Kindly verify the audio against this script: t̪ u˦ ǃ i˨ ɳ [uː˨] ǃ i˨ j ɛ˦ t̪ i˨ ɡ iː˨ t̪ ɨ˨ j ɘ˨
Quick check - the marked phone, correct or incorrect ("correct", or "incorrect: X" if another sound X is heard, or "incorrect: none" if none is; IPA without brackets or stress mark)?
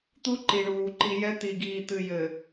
correct